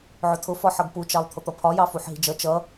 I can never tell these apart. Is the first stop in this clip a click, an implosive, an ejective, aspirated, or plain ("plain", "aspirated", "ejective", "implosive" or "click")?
aspirated